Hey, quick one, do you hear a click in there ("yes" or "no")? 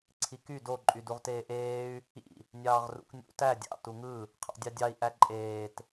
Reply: yes